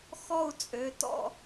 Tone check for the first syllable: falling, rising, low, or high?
falling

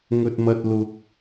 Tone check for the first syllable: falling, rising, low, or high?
low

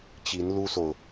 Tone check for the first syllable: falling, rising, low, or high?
rising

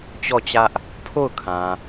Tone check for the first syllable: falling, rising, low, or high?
falling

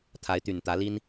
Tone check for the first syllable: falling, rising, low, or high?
rising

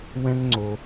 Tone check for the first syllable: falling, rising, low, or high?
high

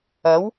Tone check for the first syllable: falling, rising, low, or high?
rising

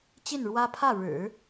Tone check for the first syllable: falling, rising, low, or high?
falling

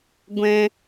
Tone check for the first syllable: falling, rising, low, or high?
high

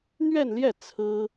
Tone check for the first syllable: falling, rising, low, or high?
falling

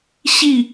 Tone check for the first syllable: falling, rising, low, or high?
falling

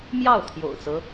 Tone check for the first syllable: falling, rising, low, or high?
falling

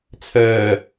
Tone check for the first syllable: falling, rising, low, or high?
low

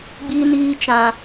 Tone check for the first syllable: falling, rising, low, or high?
high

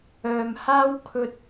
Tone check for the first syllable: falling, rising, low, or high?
low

